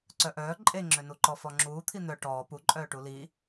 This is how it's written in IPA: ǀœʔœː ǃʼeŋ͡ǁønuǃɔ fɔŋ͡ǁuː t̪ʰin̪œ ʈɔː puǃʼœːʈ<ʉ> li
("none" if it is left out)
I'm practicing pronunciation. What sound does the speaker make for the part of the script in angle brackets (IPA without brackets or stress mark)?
u